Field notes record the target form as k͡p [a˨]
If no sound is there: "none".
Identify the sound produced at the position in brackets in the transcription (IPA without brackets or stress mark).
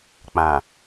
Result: ã˨